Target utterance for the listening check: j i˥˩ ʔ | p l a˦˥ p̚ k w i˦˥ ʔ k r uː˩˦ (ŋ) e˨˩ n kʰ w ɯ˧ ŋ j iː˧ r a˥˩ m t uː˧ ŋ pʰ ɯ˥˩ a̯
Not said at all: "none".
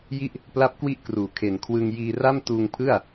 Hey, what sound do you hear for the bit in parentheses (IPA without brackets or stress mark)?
kʰ